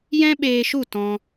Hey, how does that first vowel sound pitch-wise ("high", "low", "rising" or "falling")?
high